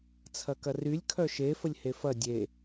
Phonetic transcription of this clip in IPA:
t͡sʰɐkɐrylʲ kʰœʃe fəlʲhefɐ dʲe

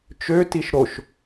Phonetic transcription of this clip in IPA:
t͡ʃøtiʃ ɾoʃ

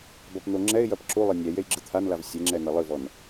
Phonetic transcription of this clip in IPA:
bɐpn̪oŋ͡ǁɛɪ̯jɐp ǁulˠɘ nʲɛ jejɡ͡ǁɨt̪ʰanlav sʲeŋ͡ǁɛ nɐlˠɨvɔn

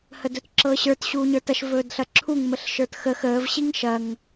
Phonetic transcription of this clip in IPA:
hədɵtǁɤɕə˞t ɕuːɲə˞tɐʃ vɵːdɬɐǁʰuŋ məɬʃə˞txəx əːv ɕiŋʃɐŋ

